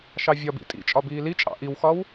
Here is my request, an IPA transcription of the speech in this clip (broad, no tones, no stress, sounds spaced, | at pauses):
ʃ ɑ vʲ ɒ b ḭ tʼ ḭ t͡ʃʼ ɒ b iː l i t͡ʃʼ ɑ̰ ʔ i w x ɒ w